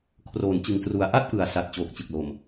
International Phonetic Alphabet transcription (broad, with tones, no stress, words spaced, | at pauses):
kʰroː˩˦nt͡ɕɯ˨˩ŋ tru˨˩a̯ʔa˥˩t̚ʔɯ˨˩a̯ sa˨˩t̚ t͡ɕoː˨˩k̚t͡ɕɯ˨˩k̚lo˨˩m